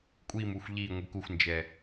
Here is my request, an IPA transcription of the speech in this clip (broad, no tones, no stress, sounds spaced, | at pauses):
kʷʼ i m u xʷ ʎ i ŋʷ i k u xʷ n d͡ʒ ɛ